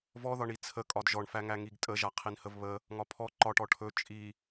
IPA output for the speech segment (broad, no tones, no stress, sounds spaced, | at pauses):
v ɔ ð ɒ ɳ i t͡sʰ ə kʼ ɒ d ʒ ɔ ɳ f æ ŋ æ ŋ i ɡ tʼ ə ʒ a qʰ i n h ə v β ə | ŋ ɒ pʰ ɔ ǃ ɒ ʈ ɔ ʈʰ ɵ t͡ʃʼ i